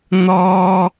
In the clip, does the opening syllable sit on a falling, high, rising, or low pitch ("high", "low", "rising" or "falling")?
high